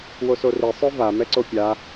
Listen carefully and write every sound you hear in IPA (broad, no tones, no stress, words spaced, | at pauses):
wosori sˤøva mɛǀopʲa